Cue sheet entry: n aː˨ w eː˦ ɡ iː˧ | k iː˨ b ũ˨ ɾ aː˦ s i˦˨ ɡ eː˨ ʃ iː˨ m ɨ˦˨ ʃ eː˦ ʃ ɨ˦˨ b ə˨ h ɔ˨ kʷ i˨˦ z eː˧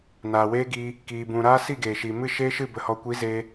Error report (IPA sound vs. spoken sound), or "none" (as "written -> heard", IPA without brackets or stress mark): none